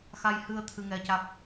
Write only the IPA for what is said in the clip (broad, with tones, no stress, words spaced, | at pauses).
xa˧jhɨ˧ə̯ t̪ʰɨ˧ŋɛ˧ca˦˥k̚